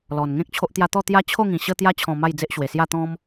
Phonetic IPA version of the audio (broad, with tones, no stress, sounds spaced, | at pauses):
l ɔ˨˩ n ŋ ẽ˦ k̚ t͡ɕʰ o˦ ʔ t̪ j a˦ t̪ ɔ˥˧ t̪ j a˦ t͡ɕʰ o˥˧ ŋ ĩ˨˩ ɕ ə˧ t̪ j a˧ t͡ɕʰ ɔ̃˨˩ m a˥˧ j d͡z e˦ ʔ ɕ w e˨˩ s j a˥˧ t̪ ɔ̃˦ m